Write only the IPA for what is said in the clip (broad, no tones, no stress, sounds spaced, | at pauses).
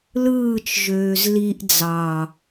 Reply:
l ɯː t͡ʃ ʒ øː z l i ʔ d͡z ɑ